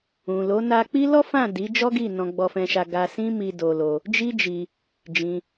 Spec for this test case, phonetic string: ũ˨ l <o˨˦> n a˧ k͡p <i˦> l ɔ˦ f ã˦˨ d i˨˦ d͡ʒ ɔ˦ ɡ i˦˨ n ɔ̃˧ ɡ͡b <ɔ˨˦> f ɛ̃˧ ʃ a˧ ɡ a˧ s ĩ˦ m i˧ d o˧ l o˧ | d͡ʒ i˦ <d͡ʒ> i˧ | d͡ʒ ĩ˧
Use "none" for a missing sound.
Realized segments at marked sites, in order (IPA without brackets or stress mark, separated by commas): o˨˦, i˦, ɔ˧, d͡ʒ